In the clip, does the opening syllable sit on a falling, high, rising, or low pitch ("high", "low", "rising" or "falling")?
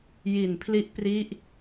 low